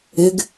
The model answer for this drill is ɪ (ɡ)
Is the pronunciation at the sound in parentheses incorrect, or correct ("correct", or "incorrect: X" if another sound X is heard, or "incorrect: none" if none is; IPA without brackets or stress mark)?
correct